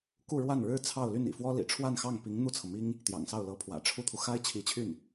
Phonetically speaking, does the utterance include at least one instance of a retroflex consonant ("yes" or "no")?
yes